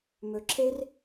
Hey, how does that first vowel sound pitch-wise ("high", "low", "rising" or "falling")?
low